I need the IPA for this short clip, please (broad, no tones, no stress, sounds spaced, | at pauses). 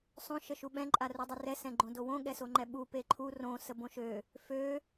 sˤ õ ʃ ə ʃ u ɓ ɛ̃ ǃʼ a r u dˤ ə r ɛ s ɛ̃ ɡ͡ǃ õ d o w õ ɠ ɛ s o ŋ͡ǃ ɛ ɓ u p e ǃʰ u r õ s ə b õ ʃ ø | f ø